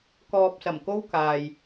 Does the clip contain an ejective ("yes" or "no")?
no